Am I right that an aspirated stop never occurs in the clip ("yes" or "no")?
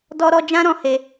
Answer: yes